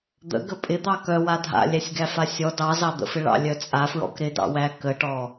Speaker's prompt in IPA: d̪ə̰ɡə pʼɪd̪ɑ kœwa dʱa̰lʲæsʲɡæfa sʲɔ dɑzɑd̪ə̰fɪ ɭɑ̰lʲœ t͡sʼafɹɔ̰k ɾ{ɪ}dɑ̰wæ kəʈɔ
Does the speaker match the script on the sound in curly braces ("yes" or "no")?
yes